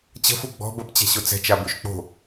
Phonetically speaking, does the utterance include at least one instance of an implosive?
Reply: no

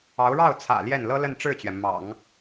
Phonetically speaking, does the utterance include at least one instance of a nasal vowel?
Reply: no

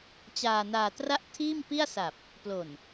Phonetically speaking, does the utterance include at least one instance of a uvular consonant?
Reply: no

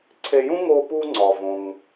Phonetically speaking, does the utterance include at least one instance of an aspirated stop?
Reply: yes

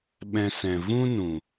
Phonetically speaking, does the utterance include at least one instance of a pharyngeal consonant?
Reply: no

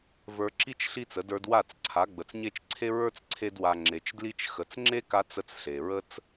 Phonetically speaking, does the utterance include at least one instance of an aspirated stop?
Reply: yes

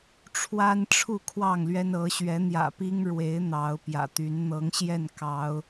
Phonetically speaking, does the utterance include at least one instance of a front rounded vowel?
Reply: yes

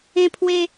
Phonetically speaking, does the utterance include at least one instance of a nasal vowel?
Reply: yes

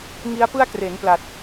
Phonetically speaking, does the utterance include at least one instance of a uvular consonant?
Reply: no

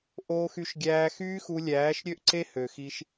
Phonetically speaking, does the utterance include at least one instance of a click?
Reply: yes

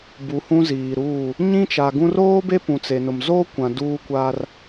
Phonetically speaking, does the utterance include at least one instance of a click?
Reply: no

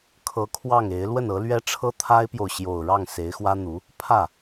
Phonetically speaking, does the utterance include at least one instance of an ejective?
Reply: no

